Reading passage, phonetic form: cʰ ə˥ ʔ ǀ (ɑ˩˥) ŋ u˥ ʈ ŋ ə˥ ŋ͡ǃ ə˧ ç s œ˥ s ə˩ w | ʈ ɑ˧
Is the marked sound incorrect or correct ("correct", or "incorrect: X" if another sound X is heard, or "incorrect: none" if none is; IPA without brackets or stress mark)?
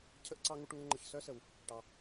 incorrect: ɑ˥